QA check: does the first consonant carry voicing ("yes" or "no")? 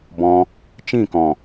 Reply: yes